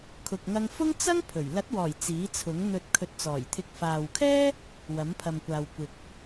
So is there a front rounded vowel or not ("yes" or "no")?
no